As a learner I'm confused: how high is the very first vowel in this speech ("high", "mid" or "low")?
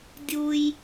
high